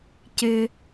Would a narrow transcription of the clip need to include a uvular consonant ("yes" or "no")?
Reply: no